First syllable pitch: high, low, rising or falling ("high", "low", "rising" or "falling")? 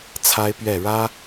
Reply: high